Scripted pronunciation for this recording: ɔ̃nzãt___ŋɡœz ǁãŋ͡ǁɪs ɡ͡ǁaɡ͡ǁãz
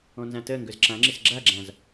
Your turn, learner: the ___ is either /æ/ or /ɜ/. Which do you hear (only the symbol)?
ɜ